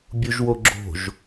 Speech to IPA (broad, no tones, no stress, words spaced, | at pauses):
bʲuʒwoɡ͡ǁo̤ʒ